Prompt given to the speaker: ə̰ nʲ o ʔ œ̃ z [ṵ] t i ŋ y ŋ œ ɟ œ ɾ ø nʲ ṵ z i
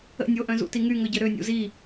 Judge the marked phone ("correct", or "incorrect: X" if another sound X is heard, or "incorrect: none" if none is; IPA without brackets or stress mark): correct